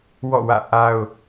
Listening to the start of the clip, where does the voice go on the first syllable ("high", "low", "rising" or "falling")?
falling